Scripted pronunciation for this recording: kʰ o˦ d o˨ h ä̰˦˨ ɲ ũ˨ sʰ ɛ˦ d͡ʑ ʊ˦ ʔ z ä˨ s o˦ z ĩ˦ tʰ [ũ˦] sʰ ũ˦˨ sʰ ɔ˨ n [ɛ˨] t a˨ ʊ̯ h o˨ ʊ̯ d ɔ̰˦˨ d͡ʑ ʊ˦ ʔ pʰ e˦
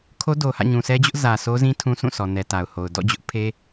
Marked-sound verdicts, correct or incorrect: correct, correct

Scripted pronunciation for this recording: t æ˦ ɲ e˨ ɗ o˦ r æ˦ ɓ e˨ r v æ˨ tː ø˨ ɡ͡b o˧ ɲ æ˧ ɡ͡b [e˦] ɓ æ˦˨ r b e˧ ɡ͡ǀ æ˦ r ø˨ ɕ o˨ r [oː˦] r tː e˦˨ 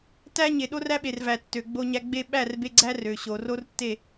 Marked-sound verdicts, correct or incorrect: correct, incorrect

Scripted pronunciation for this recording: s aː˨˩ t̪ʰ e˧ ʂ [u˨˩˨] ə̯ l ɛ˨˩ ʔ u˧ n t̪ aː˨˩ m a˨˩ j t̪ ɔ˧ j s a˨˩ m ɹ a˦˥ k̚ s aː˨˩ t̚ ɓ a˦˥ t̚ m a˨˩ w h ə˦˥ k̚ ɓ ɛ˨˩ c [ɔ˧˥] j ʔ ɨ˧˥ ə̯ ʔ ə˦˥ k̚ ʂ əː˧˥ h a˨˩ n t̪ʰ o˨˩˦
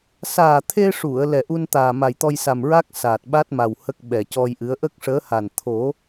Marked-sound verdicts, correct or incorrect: correct, incorrect

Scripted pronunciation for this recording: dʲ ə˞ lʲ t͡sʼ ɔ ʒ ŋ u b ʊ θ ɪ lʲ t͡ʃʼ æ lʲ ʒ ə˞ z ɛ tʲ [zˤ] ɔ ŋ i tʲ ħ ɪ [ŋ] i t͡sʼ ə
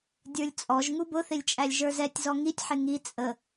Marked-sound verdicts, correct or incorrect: incorrect, correct

